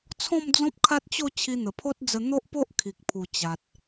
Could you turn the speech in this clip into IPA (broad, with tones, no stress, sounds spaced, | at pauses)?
t͡sʰ ɔ̃˥˧ m d͡z ɔ̃˦ p̚ kʰ a˦ t̚ t͡ɕ o˥˧ t͡ɕʰ i˧ n̪ ə˨˩ pʰ o˦ t̚ d͡z ə˧ n̪ o˦ ʔ p o˦ ʔ kʰ i˨ k̚ pʰ u˨˩ t͡ɕ a˨ t̚